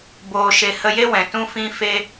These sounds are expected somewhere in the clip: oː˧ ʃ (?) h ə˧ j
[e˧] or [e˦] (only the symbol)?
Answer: e˧